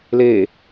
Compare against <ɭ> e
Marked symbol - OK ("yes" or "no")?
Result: no